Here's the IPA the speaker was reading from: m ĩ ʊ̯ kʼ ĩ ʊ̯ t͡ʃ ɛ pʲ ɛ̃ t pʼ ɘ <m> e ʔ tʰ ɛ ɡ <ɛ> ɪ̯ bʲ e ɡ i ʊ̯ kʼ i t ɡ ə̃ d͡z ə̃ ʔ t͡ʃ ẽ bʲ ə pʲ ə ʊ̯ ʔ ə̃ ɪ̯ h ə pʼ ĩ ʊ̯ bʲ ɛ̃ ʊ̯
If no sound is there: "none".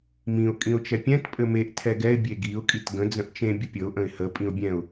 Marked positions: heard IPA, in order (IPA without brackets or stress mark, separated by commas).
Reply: m, ɛ